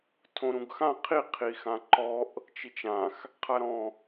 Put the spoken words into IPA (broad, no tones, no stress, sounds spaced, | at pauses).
tʰ õ ɾ ũ ɡ x ã qʰ i qʰ i x ã ǃ ɔ ʔ | t͡ʃ i t͡ʃ ã x | qʰ a ɾ ɔ̃